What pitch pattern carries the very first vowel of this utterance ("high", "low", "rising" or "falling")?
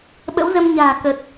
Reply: rising